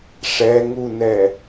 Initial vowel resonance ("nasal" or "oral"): oral